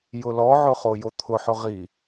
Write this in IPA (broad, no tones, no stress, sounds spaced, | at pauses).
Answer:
j ʊ l ɔ ʕ ʊ χ o j o t̪ʰ ʊ ħ ʊ ʁ i